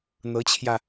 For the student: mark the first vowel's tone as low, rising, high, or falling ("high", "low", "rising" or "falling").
rising